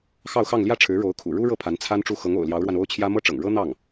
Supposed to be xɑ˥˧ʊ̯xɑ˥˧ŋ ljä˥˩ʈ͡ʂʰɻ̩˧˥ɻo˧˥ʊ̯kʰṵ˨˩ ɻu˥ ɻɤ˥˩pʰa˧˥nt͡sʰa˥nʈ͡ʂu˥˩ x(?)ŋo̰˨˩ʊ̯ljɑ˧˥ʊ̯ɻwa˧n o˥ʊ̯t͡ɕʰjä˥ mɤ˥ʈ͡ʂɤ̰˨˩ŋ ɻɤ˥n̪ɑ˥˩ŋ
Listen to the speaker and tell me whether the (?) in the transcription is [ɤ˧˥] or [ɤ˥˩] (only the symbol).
ɤ˧˥